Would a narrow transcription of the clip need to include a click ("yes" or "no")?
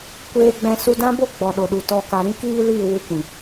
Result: no